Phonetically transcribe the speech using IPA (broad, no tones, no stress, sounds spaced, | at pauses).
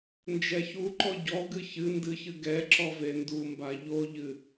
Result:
n d͡ʒ ɛ ç u ǃ ɔ ɟ ɔ ɡ ɨ ç ɨ n d ɨ ç ɨ ɡ ɛ ǁ ɔ v e n d u m b a ʎ o ʎ ɨ